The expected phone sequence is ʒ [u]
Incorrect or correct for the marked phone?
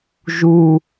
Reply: correct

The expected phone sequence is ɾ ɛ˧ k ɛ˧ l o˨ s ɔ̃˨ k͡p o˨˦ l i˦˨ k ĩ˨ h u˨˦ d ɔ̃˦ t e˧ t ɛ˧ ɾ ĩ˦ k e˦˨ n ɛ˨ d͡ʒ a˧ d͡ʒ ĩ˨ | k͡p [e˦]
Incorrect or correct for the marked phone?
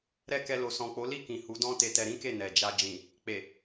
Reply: incorrect: e˨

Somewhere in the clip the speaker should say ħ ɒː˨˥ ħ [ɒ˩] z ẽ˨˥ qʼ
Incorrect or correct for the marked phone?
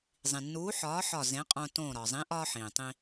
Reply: incorrect: ɒ˧˩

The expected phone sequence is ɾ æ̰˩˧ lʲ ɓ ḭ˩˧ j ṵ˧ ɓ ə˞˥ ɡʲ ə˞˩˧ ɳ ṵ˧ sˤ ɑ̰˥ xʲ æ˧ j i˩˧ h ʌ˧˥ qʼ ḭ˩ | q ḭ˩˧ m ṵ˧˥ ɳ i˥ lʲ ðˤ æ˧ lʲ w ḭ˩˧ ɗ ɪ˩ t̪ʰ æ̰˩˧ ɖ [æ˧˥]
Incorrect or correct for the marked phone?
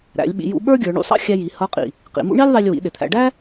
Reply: incorrect: æ˥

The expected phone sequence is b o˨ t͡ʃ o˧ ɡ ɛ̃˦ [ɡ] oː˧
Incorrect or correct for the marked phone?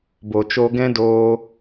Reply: incorrect: d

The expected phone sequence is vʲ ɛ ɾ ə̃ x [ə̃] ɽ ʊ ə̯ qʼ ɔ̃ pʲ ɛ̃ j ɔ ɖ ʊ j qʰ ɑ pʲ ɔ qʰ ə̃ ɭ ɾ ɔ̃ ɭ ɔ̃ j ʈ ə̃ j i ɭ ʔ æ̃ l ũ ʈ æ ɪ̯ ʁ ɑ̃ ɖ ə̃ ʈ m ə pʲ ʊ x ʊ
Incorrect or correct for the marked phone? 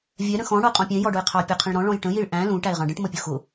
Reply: incorrect: ɔ̃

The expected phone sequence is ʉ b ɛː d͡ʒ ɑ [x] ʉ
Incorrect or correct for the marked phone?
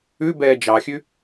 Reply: incorrect: xʲ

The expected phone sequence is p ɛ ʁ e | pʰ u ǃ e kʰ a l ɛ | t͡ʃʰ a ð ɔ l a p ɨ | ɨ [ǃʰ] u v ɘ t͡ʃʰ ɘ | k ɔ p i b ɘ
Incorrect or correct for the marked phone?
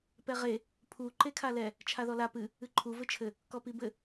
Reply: correct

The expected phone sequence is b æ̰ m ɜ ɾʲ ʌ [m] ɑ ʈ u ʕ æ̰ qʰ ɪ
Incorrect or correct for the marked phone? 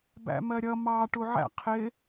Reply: correct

